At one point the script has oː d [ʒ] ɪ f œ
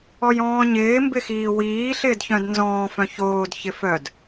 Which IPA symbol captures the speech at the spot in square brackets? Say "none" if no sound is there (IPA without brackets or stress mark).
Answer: ç